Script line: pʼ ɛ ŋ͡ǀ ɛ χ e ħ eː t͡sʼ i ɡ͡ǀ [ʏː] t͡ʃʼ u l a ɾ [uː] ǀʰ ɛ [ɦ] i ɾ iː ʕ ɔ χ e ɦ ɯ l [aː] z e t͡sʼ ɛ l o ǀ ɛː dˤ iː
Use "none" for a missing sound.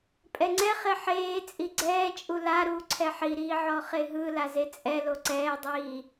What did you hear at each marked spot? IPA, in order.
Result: ɛː, uː, ħ, a

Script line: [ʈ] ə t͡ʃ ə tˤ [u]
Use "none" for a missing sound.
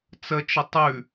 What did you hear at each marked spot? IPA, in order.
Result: t͡s, ʉ

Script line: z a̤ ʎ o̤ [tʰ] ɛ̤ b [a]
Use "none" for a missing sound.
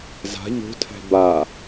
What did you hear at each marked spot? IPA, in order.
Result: tʰ, a

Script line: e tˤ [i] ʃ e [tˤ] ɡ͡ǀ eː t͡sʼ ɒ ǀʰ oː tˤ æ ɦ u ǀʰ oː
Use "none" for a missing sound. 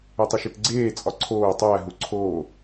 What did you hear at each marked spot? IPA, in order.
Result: i, t

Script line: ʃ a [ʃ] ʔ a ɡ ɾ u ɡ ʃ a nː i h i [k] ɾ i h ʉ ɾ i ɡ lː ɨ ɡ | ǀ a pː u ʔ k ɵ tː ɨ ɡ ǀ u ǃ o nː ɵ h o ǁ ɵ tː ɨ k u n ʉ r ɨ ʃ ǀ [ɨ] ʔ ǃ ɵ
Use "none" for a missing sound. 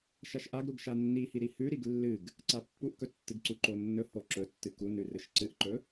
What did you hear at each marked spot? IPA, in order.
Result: ʃ, none, ɨ

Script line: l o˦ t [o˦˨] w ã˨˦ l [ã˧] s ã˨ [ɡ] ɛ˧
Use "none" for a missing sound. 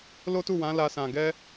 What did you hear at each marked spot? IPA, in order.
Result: u˦˨, a˧, ɡ

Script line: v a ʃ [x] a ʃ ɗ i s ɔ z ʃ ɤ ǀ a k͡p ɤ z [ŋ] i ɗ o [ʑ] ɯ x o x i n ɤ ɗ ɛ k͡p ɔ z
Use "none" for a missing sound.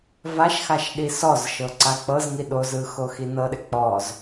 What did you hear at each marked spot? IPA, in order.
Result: x, ŋ, z

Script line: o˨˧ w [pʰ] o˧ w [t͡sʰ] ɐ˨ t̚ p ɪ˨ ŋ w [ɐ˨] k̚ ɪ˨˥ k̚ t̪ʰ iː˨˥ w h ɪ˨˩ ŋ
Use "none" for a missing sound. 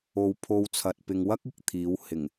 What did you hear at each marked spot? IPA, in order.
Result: pʰ, t͡sʰ, ɐ˥

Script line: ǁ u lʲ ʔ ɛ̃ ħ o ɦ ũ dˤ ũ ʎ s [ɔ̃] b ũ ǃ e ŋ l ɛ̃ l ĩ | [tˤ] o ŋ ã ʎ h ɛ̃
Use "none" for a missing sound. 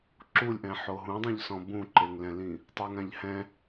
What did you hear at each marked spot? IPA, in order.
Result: ɔ̃, tˤ

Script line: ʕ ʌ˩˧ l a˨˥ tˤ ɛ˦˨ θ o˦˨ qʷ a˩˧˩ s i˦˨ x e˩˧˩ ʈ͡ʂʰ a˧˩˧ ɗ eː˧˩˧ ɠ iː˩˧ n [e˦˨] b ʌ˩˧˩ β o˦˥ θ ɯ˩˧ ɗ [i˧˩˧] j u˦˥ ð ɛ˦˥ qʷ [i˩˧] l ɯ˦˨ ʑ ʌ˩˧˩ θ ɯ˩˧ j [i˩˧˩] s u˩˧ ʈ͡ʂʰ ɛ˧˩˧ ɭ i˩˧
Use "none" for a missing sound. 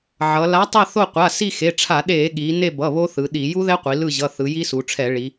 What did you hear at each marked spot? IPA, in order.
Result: e˦˨, i˧˩˧, i˩˧, i˦˥

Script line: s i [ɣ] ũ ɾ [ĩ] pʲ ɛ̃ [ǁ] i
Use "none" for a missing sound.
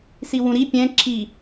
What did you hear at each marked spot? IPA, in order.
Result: w, i, ǁ

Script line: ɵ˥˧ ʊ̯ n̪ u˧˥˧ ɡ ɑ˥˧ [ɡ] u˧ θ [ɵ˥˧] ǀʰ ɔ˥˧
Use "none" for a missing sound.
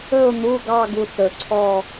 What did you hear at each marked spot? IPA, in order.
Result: ɡ, ɵ˧

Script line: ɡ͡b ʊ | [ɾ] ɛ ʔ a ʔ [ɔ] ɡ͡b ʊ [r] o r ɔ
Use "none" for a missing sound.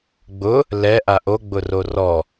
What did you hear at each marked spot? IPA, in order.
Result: l, o, r

